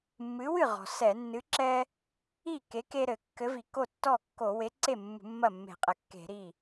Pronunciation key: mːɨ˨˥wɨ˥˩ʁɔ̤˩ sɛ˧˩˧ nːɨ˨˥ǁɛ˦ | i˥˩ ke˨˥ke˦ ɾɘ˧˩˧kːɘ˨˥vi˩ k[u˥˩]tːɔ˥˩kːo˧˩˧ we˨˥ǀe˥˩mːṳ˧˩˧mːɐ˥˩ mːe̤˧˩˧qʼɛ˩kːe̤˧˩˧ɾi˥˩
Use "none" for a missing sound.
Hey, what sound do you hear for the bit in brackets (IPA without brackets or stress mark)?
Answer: o˥˩